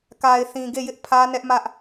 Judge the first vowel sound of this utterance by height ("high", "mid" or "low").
low